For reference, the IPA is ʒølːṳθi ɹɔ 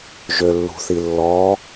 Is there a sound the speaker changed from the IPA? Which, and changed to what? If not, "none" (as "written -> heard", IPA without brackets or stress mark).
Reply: ɹ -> lː